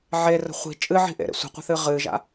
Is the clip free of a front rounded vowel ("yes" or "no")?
yes